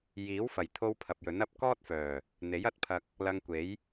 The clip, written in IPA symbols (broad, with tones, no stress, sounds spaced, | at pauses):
j iː˨˥ w f ɐ˨˩ j t̪ʰ o˧ w pʰ ɐ˨ p̚ j ɵ˨˥ n ɐ˧ p̚ k ɔː˥ t̚ f œː˨˩ | n̪ e˨˥ j ɐ˧ t̚ pʰ ɐ˧ k̚ | l ɐ˧ ŋ kʷ e˨˥ j